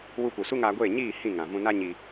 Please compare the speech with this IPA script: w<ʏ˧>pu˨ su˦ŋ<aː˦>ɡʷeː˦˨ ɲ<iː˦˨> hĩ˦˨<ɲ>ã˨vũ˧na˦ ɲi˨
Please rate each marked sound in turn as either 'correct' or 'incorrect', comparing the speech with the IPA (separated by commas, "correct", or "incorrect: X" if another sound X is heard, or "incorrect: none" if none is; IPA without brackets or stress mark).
incorrect: u˧, incorrect: aː˧, correct, incorrect: ŋ